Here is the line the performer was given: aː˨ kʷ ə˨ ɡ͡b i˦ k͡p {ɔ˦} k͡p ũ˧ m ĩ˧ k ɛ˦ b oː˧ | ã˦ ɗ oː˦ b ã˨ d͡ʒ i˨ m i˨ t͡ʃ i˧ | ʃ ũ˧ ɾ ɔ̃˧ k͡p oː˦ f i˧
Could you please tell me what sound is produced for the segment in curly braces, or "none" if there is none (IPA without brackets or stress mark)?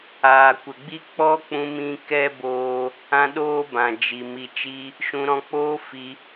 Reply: ɔ˦